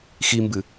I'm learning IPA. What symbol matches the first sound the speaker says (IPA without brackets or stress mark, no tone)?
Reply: x